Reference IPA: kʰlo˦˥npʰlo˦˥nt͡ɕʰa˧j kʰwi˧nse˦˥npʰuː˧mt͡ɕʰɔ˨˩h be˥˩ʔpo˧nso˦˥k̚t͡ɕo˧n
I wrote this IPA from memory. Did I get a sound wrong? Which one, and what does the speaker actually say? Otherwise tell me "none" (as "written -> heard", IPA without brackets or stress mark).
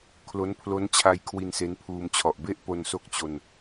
h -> ʔ